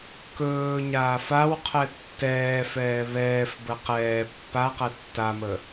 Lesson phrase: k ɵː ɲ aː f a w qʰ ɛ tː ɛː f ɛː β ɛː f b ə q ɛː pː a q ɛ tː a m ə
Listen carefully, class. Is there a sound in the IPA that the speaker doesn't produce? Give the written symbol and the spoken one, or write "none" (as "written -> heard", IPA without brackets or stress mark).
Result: none